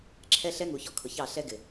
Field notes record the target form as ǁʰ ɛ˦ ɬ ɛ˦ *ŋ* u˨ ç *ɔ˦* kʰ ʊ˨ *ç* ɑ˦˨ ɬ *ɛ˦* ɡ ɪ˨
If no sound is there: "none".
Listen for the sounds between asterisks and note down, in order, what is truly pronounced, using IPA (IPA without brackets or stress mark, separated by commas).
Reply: ŋ, ɔ˦, ç, ɛ˦